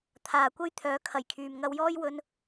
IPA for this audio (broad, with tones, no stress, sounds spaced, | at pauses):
t̪ʰ aː˨ kʷ ɐ˥ j t̪ʰ œː˨˥ kʰ ɐ˨˩ j kʰ yː˨ m ŋ ɐ˧ w j ɔː˥ j w ɵ˧ n